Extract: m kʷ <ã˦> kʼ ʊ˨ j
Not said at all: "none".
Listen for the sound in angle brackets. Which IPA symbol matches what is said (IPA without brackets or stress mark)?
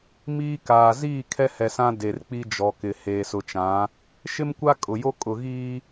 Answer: a˦